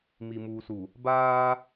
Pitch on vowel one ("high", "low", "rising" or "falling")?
low